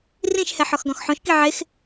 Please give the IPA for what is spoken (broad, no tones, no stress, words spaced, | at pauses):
rĩʃhɛ ħɔxɡɔ̃xħõʃki ʕex